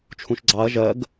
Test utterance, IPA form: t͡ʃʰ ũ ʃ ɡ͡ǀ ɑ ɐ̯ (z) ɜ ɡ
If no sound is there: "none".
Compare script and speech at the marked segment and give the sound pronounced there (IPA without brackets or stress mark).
ʒ